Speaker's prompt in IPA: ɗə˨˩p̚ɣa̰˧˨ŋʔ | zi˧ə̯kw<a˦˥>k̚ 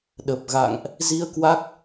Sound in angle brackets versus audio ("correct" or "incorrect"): correct